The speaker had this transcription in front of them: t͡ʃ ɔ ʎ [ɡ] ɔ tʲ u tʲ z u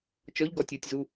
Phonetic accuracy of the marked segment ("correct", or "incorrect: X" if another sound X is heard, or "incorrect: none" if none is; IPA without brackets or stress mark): correct